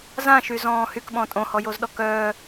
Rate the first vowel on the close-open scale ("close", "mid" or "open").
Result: open